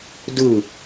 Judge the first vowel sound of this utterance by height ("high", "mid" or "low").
high